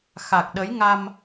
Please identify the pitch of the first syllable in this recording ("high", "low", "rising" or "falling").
low